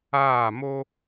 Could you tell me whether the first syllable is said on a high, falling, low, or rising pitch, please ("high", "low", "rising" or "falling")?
falling